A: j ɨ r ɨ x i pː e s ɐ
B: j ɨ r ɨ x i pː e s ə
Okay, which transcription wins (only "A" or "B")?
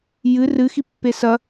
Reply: A